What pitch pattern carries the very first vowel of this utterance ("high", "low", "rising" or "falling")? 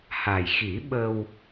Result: low